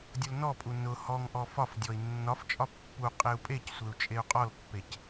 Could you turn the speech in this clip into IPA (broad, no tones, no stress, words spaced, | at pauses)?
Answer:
dʲʊlnɔpʼu nʊ hɔŋ ʔɔfɒfdʲɔi̯ nːɒft͡ʃʼɒ pːu qʼeu̯pʼecsʷeu̯ t͡ʃʼeu̯qʼɔlpːec